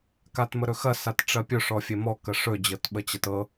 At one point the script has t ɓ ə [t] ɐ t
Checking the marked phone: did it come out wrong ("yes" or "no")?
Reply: yes